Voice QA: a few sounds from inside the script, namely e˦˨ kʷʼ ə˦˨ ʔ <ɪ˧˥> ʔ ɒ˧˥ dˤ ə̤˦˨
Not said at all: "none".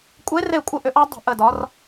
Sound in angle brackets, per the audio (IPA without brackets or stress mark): ʏ˧˥